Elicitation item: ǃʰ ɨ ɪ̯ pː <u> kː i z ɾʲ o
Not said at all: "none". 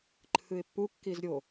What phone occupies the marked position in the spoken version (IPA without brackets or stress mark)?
u